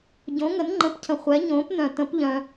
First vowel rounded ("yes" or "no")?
yes